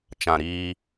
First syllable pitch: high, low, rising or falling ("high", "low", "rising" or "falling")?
low